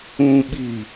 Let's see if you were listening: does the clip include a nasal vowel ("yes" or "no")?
yes